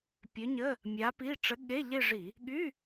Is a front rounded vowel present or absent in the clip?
present